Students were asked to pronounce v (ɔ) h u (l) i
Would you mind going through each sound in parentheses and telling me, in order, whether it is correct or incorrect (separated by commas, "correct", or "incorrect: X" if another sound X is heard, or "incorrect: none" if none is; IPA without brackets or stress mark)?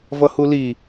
incorrect: ʌ, correct